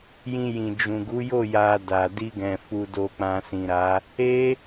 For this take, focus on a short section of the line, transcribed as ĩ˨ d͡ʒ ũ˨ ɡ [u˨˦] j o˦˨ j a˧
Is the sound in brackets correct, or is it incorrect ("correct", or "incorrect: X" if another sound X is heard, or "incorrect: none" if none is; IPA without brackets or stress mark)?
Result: correct